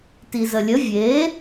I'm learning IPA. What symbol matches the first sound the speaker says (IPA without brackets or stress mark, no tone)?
t